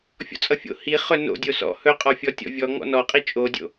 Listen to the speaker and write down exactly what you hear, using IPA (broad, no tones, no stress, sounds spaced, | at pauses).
fʲ ɔ̰ t͡sʼ ʌ fʲ o̰ h i χ ɵ n o̰ dʲ o s ɔ̰ h ɵ qʼ ɔ fʲ ɔ tʲ ɔ̰ vʲ ɔ ŋ ɔ̰ n ɔ qʼ i t͡ʃʼ o dʲ o̰